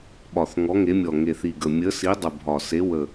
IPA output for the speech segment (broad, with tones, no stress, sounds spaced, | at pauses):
ɓ ɒ˨˩ θ ŋ ɔ˨˥ ŋ e˨˥ mʲ ɔ˨˩ ŋ e˨˩ θ i˨˩ ɡ ə˨˩ mʲ ə˨˥ s i˨˥ dˤ ə˨˩ bʱ ɒ˨˩ s e˨˥ w ə˨˩